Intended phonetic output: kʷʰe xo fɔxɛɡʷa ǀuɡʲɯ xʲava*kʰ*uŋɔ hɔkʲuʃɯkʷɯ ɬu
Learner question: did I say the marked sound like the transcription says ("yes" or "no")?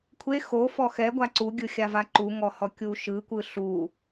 no